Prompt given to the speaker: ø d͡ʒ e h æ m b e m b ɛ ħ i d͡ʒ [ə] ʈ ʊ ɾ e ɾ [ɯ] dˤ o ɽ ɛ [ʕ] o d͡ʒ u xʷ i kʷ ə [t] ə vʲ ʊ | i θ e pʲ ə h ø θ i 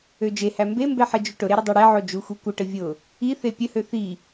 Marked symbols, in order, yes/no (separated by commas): no, no, yes, no